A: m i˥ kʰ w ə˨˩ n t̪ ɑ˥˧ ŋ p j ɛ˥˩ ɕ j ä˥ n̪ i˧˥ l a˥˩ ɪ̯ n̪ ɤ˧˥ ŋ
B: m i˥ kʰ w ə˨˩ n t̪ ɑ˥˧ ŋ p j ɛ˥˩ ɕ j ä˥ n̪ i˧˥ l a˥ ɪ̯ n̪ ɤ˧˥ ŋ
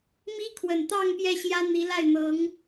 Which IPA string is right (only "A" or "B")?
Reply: A